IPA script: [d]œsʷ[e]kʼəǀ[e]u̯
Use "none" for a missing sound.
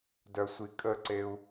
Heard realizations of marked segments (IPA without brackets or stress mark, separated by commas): d, i, e